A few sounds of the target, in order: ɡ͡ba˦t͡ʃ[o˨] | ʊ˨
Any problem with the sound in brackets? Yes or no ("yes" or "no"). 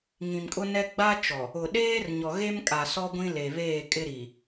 yes